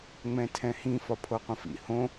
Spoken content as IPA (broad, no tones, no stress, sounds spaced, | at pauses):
ŋ͡m ɛ̃ tʰ ɛ̃ h ĩ f ɒ pʰ o qʷ ə̃ f ḭ h õ